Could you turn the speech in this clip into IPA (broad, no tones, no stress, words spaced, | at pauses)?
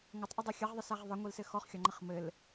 ŋʷɘtˤʔədˤɛ xʲəʁðˤəsaʁ ðˤɪŋʷilsɘ xɔχxʲɒŋ͡ǃəχ mɘl